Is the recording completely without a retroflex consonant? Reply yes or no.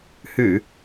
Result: yes